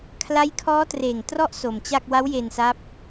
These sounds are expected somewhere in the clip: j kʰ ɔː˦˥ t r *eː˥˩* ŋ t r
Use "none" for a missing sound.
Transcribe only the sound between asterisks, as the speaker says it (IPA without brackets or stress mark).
eː˨˩